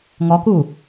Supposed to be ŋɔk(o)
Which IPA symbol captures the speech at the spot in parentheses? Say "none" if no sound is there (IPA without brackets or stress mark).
u